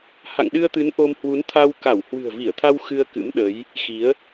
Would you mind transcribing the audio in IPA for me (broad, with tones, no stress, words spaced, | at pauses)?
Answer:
ha̰˧˨ŋɗɨ˧ə̯t̪ɨ˨˦n ʔo˧mhwu˨˦n t̪ʰa˧wka˧˩w hwɨ̤˨˩ə̯vi˧˩ə̯t̪ʰa˧w xɨ˧ə̯kɨ̰˧˥mɗə˨˦j | xi˨˦ə̯